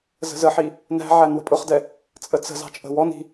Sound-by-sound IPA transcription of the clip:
z ə̤ z ə ħ i | n æ̤ ʕ æ n w ə̤ pʼ ʊ χ d ɛ | t͡sʼ ə t͡s ə̤ z ɑ̤ t͡ʃʼ ə̤ w ɔ n i̤

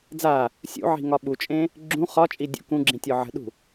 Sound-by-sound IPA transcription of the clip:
d͡z a | sʲ ṵ ʕ i̤ ŋ ɒ ɓ u t͡ʃʼ ẽ | ɡ͡ǁ ũ χ ɒ t͡ʃʼ i dʲ ṵ k ũ ɡ͡ǁ ĩ tʲ ɔ ʕ ə̤ ɗ ṳ

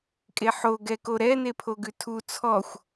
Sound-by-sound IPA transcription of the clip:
kʼ e ħ o ɡ ɛ k o ɾ ɛ n e pʰ o ɡ ʉ tʰ u t͡sʰ ɔ xʷ

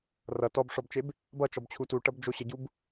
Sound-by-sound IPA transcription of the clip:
r ʌ t ɔ b ʂ ɔ b t͡ʃ e b | b ʌ t͡ʃ ɔ b t͡ɕʰ u t u ʈ ʌ b d͡ʒ o ɕ ə ɟ u b

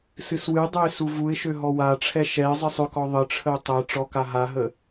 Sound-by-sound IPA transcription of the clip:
s ɨ s w ɨ dˤ ø ɪ̯ s u v u ɪ̯ ʃ ø ɦ ɔ w a ʈ͡ʂʰ ɛ ʃ ɛ ɪ̯ zˤ ɨ sˤ ø k ɔ ðˤ ə ʈ͡ʂʰ ə ʊ̯ tˤ ɛ ʈ͡ʂ ɔ k a ɦ a ɦ ə

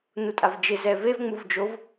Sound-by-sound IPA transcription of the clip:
n u tʼ a v d͡ʒ ɪ z ɛ v e v ŋ͡m u v d͡ʒ o v

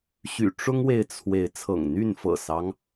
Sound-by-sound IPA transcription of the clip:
ɕ y̰˨˩ ʈ͡ʂ ʊ˦ ŋ w e˨ ɪ̯ t͡sʰ w e˨˦ ɪ̯ t͡sʰ ɤ̰˨˩ ŋ n̪ y˥˨ n f ɤ̰˨˩ s ɑ˦ ŋ

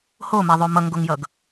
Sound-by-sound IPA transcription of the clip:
h o m ɛ ðˤ o m ʌ ŋ ɡ o ŋ j ʌ ɡ

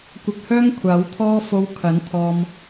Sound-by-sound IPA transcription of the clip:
kʷ ɐ˧ k̚ h œː˥ ŋ kʷʰ aː˨˥ w t̪ʰ ɔː˥ f o˧ w kʰ ɐ˨˥ n t̪ʰ ɔː˧ m

